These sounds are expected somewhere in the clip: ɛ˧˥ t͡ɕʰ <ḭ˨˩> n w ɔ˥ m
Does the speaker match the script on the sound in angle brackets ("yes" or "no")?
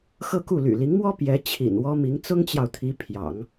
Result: yes